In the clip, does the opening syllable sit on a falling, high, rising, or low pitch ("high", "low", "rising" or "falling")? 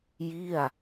falling